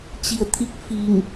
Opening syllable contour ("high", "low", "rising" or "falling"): low